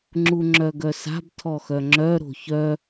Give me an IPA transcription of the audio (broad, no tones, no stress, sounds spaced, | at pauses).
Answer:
ŋ͡ǁ u ŋ͡ǁ œ ɡ œ s a̤ b tʰ ɔ x œ ŋ͡ǁ œ ɾ o̤ ç œ